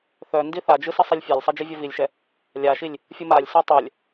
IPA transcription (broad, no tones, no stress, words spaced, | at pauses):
θœ ndiθad͡ʒɯ sɯsˤilʲfʲalʲsˤɛ d͡ʒivʲœvilʲʃɛ | lʲaʃilʲ | fʲɯmalʲsœ tˤœlʲ